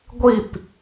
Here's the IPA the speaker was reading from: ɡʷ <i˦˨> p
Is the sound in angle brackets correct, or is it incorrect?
correct